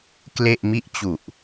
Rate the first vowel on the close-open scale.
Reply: mid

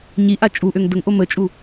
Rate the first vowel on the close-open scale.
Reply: close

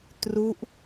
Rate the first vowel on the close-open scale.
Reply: close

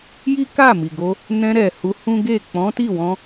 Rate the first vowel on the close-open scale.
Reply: close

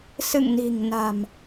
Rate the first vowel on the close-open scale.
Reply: close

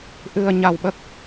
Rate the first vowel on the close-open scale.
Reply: close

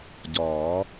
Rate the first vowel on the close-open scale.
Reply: open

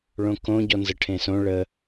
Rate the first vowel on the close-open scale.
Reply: mid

